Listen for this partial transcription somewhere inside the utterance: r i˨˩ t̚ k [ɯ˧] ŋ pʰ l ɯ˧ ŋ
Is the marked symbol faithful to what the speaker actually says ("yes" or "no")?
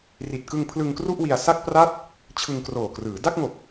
yes